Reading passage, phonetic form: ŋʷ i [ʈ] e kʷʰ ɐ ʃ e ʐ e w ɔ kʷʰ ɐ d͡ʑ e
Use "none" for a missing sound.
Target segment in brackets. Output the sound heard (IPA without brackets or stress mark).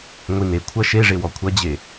n